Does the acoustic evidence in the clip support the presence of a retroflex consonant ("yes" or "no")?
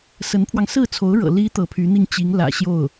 yes